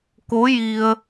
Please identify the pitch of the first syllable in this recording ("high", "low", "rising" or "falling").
rising